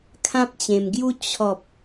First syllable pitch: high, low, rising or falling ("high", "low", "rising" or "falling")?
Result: high